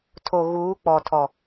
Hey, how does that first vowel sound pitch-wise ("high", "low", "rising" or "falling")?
low